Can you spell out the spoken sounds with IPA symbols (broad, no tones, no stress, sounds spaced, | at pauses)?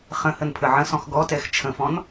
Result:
χ ə̃ h ə n pʰ ə ʕ ə̃ s ɔ̃ x ɡ ɔ t ɛ x t͡ʃʰ ə̃ f ɔ̃ n